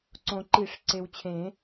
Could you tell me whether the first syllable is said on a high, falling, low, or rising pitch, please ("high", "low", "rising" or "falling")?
low